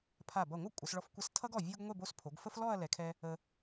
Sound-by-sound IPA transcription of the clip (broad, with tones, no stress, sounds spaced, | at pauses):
pʰ a˧˩ b ʌ˧˩ ŋʷ ʌ˥˧ kʷʼ ə˩˧ s ɭ ɔ˧ f kʷ ʌ˧ s tʰ ʌ˥ ɡ ɔ˧˩ vʲ o˧ ɡ ŋʷ ɛ˥˧ b o˥ s pʰ o˩˧ ɡ f ə˥ f l ɔ˥˧ ɐ̯ l ɛ˩˧ kʰ ɛ˧ | ə˧